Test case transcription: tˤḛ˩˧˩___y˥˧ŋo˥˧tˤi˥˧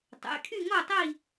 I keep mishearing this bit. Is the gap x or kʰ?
kʰ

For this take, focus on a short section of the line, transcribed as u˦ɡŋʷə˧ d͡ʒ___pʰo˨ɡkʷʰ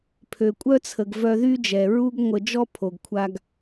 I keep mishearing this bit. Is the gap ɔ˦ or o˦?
ɔ˦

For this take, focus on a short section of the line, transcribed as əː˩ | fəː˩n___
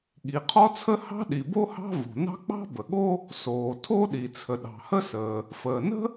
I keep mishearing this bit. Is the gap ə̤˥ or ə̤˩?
ə̤˥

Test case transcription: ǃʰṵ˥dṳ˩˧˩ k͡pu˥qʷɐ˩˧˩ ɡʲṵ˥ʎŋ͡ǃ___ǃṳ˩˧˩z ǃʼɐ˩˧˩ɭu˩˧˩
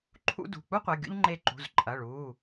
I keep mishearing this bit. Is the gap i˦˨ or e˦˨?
e˦˨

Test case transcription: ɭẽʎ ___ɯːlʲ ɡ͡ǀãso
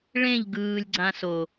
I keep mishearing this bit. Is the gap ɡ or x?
ɡ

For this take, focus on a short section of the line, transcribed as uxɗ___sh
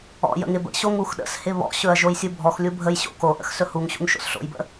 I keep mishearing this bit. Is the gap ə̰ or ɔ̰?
ə̰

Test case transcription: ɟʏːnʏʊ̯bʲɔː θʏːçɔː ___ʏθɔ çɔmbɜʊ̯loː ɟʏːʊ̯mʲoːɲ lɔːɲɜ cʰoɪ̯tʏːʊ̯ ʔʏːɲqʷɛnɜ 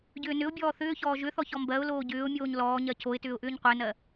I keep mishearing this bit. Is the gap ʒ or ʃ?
ʒ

